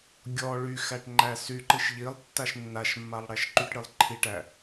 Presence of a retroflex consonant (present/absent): present